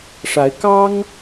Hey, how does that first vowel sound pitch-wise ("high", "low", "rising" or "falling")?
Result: rising